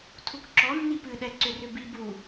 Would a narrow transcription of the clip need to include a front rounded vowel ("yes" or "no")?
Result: yes